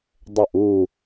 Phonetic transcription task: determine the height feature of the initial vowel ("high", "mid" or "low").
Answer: mid